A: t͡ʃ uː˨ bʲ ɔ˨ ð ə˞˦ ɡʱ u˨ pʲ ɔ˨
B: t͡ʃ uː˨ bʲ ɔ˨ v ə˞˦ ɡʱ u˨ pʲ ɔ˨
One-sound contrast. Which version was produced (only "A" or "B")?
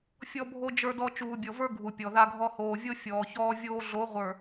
B